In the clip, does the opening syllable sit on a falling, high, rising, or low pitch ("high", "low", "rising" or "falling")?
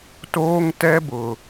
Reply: high